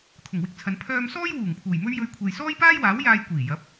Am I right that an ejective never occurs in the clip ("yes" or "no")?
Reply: yes